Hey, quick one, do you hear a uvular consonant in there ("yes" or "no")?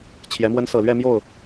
no